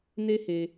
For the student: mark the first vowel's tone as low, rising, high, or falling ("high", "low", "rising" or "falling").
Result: high